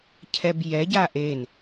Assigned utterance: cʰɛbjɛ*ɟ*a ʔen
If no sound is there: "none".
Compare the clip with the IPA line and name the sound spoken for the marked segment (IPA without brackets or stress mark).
ɟ